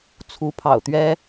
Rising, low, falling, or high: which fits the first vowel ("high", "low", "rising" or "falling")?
rising